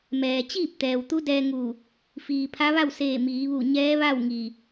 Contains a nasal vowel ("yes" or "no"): no